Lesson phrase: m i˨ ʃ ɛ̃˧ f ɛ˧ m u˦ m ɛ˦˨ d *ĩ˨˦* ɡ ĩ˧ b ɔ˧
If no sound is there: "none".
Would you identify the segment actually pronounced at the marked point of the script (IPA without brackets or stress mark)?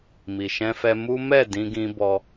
ĩ˧